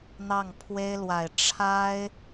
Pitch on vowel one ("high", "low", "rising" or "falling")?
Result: falling